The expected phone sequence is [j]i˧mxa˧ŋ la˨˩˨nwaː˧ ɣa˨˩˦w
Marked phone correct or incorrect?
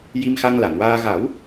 correct